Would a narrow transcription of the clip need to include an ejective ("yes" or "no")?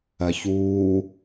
no